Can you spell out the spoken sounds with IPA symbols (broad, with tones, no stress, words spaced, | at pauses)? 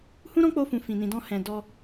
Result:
hũ˦ɾɔ̃˦k͡po˧fũ˨ fĩ˨nĩ˨dɔ̃˧ hɛ̃˧ dɔ˧